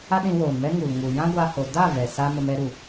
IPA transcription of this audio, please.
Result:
a˦ ɗ ĩ˧ w oː˨ n m ɛ˦ ŋ u˨ l ŋ u˨ j ã˦ ɡʷ a˧ h o˨ d a˦˨ v ɛ˨ s a˦ m ə˧ m ɛ˧ ɾ u˨

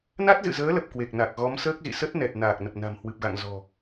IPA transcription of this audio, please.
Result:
n a˦˥ t̚ z ɨ̰˧˨ z əː˨˦ l ə˨˩ p̚ k w e˨˩ k̚ n a˨˩ k̚ ɣ ɔ˨˦ m s əː˦˥ k̚ z ḭ˧˨ s ə˦˥ t̚ n ɛ˨˩ t̚ n aː˨˩ k̚ n ə˨˩ p̚ n a̤˨˩ m h w ɨ˨˩ p̚ ɣ a̰˧˨ ŋ z ɔ̤˨˩

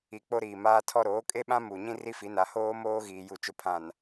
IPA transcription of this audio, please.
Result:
i˨ k͡p o˦ ɾ iː˨ m aː˦ tʰ ɔ˦ ɾ oː˨˦ kʼ e˦ ɓ ã˦ m u˨ ɲ ĩ˦ r i˦ f i˨˦ n a˨˦ h oː˦ m oː˦ ɣ iː˨ j u˨ t͡ʃ ʊ˨ pʰ ã˨ n

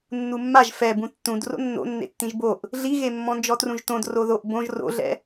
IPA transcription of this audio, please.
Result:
nː u mː a ʒ f ɛ b ũ tː ũ d r o̰ nː o̰ nː ḛ tː ĩ ʒ b o ʔ | ɮ i ɣ e mː ɔ̃ n d͡ʒ ɔ t r ũ ʒ t õ d r o ð o ʔ b õ ʒ r o̰ ɮ ɛ̰

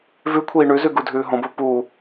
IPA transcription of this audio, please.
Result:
v ʉ kʷʰ iː ɳ ʉ z ʉ ɡ u dʱ ʉː ɦ õ b o p u

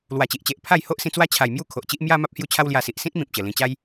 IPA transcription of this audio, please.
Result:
l w a˨˩ t͡ɕ i˨ ʔ t͡ɕ e˨ ʔ pʰ a˥˧ j h o˦ ʔ s ĩ˧ t͡s w a˦ t͡ɕʰ a˨˩ j m j u˥˧ kʰ o˨ ʔ t͡ɕ i˦ ʔ m j a˦ m a˦ p̚ h j u˥˧ t͡ɕʰ a˦ w l j a˧ s i˨ ʔ s ĩ˦ t̚ m ĩ˨ p̚ t͡ɕ ə˨˩ l ĩ˧ t͡ɕ a˦ j

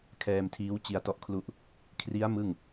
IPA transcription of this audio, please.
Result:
kʰ ɛː˧ m tʰ iː˦˥ w t͡ɕ i˧ a̯ t ɔ˥˩ ʔ kʰ l u˦˥ ʔ | kʰ r i˦˥ a̯ m ɯ˥˩ ŋ

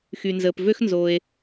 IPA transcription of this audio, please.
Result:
x y˩ n z əː˩ p v ø˥ x n z o˩ e̯

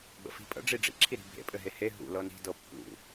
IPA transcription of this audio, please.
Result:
ɡ͡b ə̰ f i̤ pʼ ə̰ ɖ͡ʐ i ɖ͡ʐ ḭ ǁʰ i ɾ i̤ bʱ ḛ pʼ ɘ ɦ e h e ɦ ṵ l ɤ n i̤ d ɤ pː ṵ

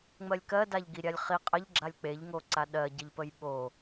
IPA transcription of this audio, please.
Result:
ŋ͡m ɜ lʲ k ɜ d a ʎ ɡ i ɾʲ a lʲ χ i qʼ ə ʎ ɡ͡ǁ a lʲ k͡p e ʎ ŋ o ǀ a ɗ ɜ ɟ ə ʎ p ə j ɓ o

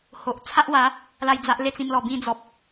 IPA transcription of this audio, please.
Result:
h o˨ ʔ t͡sʰ a˦ ʔ w a˨˦ | l a˥˧ j d͡z a˦ ʔ l e˥˧ t͡s ĩ˧ m l ɔ˨˩ b ĩ˥˧ d͡z ɔ˨ p̚

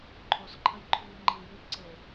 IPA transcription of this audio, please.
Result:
ǃʰ o s ǃʰ ə j ǃʰ yː ŋ͡ǃ i j y b ǀ e

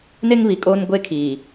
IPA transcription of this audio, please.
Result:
n e˦ ŋ β i˨ kʼ oː˦ n ɡʷ e˦ kʰ iː˨

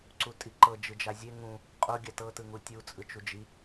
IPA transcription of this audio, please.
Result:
ǀ u tʼ i ǃ ɤ d͡ʒ ɯ d͡ʒ a zʲ e ŋ ũ | qʼ o ɡʲ a t ɤ t ɯ ŋ u tʲ u t͡sʼ ɯ t͡ʃ u d͡ʒ i

